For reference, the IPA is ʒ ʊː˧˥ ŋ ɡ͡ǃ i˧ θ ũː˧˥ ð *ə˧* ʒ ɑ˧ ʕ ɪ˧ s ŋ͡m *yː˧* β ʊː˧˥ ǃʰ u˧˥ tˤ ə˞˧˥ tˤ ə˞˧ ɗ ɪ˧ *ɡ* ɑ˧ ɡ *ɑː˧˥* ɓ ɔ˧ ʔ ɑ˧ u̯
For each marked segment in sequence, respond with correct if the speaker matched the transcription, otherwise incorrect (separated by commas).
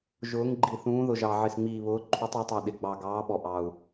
incorrect, incorrect, incorrect, correct